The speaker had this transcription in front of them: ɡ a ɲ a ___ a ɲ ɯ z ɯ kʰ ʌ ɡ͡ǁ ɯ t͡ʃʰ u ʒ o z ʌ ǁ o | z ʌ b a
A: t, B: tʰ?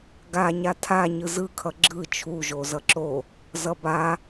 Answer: B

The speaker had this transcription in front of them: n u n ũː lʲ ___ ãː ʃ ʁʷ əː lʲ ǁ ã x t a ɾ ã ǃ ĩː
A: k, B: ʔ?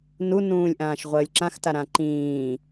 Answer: B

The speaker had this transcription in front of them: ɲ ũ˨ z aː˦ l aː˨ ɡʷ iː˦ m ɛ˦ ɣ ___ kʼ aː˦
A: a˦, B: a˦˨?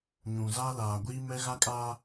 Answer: A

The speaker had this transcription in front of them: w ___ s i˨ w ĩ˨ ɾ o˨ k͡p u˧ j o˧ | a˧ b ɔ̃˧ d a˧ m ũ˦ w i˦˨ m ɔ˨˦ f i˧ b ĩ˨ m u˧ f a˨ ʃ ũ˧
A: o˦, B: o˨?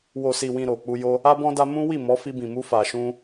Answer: B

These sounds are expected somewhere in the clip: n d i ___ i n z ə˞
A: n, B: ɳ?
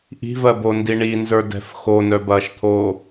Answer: B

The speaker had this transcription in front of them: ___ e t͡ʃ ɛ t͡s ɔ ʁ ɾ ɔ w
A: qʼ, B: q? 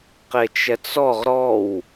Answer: B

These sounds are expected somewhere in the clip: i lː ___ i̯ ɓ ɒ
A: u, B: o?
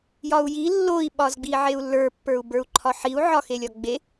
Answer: B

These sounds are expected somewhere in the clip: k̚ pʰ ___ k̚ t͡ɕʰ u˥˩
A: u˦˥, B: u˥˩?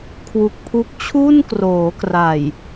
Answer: A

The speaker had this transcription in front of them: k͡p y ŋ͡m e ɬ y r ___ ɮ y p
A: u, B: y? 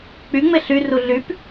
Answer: A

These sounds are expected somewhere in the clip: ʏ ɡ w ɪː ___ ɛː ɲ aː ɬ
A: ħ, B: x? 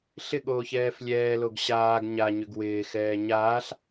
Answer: B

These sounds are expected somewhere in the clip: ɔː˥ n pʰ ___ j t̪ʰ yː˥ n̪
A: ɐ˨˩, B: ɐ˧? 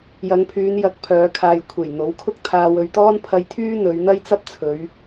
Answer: B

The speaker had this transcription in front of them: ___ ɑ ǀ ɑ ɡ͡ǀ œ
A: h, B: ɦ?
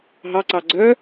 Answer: B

